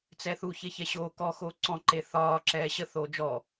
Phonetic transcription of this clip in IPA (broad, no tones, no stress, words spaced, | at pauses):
t͡sɛθu çeçɛɕoː kɔ xoːǀɔ̃ ǃeθɒː ǁɛːɕə θoːd͡ʒɔ